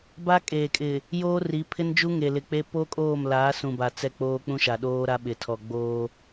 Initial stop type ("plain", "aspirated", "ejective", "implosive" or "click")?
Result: plain